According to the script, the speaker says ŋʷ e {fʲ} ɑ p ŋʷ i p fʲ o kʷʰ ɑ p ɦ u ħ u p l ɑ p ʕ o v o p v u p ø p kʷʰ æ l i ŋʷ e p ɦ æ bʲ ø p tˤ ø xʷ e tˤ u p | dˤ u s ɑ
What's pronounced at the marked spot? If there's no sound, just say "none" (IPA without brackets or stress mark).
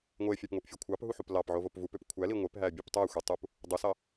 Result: fʲ